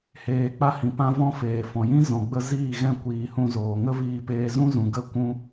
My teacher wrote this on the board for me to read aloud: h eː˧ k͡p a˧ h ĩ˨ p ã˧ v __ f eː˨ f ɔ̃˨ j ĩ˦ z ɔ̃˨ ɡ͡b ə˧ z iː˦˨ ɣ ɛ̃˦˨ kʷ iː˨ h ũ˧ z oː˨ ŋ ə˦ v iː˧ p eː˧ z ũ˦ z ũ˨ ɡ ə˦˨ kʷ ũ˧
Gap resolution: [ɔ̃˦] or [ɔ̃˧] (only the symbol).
ɔ̃˧